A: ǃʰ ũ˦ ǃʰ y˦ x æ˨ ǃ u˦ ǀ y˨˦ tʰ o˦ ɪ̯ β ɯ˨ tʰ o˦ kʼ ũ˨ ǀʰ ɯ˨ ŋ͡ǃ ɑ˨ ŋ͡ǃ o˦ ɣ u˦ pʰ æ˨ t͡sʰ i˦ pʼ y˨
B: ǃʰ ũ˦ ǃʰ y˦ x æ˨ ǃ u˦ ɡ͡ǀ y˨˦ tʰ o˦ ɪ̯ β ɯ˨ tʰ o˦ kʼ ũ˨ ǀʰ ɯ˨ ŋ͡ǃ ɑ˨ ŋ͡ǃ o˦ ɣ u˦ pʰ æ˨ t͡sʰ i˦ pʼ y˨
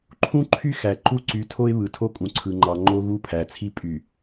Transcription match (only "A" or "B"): A